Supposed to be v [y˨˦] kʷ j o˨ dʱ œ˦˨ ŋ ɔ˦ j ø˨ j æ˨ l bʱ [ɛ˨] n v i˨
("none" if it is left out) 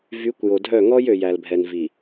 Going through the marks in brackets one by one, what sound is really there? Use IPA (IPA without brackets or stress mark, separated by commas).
y˨˦, ɛ˨